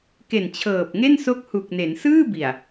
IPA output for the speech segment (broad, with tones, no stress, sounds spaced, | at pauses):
k e˨˩ n t͡ɕʰ ɤː˨˩ p̚ ŋ e˥˩ n s o˦˥ k̚ h u˨˩ k̚ n e˩˦ n s ɯː˥˩ b i˨˩ a̯